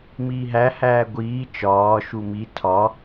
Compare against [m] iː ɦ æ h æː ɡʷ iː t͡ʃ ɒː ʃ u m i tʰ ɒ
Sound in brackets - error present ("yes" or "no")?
no